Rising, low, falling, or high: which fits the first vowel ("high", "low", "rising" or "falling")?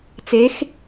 rising